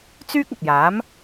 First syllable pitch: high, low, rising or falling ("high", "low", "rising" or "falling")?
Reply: high